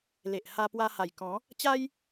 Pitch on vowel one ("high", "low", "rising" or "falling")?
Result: low